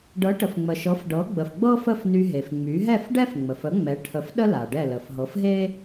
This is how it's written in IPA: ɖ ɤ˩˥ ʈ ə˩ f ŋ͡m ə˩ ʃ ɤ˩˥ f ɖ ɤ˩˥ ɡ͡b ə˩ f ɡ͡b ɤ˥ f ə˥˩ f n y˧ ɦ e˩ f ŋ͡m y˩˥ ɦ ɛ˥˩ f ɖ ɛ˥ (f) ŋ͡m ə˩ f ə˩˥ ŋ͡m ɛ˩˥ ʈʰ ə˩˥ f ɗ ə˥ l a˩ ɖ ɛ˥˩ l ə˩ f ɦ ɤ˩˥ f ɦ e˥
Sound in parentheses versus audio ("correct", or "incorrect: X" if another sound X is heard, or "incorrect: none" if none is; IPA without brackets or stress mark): correct